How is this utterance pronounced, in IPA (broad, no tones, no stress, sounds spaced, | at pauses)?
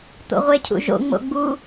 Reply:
t̪ o̰ ʁʷ e cʰ ṵ ʒ o̰ ŋ͡m o̰ ɡ͡b u